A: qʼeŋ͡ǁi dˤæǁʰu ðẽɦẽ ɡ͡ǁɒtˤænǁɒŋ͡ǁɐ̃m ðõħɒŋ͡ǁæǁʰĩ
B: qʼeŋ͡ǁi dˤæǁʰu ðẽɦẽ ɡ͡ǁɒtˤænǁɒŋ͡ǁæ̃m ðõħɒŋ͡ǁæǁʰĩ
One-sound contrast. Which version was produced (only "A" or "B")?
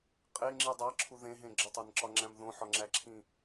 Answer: B